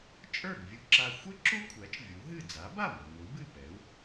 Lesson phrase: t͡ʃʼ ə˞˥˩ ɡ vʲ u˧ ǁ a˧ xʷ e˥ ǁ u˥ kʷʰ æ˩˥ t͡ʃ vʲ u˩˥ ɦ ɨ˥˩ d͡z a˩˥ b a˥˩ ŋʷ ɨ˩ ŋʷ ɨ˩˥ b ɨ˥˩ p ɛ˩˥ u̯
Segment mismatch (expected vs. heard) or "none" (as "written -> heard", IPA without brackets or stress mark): none